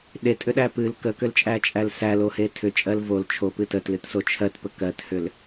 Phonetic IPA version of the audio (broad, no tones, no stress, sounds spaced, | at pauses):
ɗ e tʼ ʏ ɗ æ p ɨ l k ə k ʏ l t͡ʃʼ æ t͡ʃʼ æ l s æ l o h e tʰ ʏ t͡ʃʼ ɜ l v o l t͡ʃʰ o p ɨ t ə t l ɨ t s o t͡ʃʰ ɜ t p ə k ɜ t h ʏ l